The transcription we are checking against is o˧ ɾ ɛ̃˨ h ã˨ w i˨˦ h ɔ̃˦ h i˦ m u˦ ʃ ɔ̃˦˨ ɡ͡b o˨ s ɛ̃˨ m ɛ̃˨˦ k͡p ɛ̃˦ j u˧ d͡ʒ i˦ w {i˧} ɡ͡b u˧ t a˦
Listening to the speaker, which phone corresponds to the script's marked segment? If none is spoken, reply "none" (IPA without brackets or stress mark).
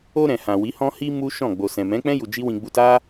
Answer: ĩ˧